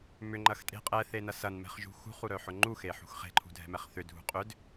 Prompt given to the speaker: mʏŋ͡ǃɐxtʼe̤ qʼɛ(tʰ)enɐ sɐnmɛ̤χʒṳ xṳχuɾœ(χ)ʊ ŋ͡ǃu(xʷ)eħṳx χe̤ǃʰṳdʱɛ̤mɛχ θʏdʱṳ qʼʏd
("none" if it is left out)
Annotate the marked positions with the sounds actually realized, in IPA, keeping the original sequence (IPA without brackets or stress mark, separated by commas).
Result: θ, ħ, x